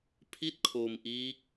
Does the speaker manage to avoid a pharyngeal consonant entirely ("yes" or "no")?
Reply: yes